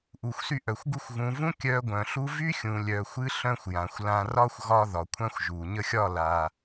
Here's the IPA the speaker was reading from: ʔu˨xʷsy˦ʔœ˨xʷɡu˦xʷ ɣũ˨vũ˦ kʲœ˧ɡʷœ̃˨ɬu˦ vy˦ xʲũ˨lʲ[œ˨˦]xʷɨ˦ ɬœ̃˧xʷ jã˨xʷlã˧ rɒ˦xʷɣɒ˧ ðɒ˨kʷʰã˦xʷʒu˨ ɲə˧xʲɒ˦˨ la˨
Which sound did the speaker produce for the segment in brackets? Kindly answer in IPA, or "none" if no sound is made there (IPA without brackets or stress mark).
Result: œ˨